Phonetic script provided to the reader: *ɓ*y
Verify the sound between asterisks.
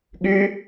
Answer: incorrect: ɠ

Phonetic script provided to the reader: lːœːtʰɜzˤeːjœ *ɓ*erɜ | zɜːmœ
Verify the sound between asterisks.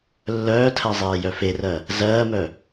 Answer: incorrect: f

